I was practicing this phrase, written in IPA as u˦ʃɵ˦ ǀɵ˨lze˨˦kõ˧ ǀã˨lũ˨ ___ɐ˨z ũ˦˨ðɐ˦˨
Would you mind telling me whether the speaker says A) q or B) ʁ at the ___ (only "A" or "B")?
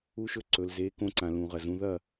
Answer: B